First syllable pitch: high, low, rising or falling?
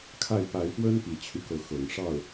falling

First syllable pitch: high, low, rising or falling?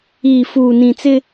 low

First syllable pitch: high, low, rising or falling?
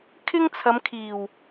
high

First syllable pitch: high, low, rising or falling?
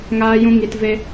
high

